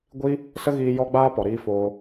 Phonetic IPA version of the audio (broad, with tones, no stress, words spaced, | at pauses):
ɡʷi˦ | sə˦ɣiː˧ jɔ˧ɡ͡baː˧pɔ˨ ɾiː˧foː˧